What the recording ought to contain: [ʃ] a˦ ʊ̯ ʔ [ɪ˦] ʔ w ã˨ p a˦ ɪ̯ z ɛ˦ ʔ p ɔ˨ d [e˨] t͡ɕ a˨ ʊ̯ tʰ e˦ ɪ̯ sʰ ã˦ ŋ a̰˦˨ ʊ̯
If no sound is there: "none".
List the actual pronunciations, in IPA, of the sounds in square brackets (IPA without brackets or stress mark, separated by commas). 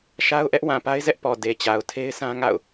ʃ, ɛ˦, e˨